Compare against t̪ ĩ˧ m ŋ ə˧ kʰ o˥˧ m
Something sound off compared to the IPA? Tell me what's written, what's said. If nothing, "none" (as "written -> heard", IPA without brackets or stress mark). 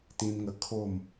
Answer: none